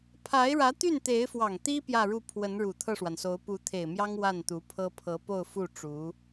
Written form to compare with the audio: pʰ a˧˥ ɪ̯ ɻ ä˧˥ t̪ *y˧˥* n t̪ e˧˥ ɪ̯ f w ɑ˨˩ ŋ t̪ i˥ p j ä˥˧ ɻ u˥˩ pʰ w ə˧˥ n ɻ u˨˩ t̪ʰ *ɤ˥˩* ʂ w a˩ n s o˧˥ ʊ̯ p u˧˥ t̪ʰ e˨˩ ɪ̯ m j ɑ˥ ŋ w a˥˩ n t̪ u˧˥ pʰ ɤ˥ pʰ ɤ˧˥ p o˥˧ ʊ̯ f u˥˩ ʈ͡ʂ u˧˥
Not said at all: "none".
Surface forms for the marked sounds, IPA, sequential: y˥˩, ɤ˥˩

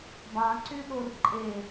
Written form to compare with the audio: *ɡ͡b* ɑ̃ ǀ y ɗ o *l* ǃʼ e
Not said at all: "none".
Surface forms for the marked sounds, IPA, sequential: b, r

